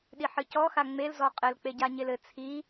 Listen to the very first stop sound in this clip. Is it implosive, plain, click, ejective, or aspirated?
implosive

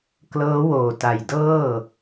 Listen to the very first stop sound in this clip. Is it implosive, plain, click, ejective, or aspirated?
plain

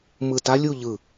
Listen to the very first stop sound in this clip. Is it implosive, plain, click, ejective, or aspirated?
plain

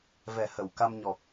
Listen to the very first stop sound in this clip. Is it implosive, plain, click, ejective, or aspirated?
plain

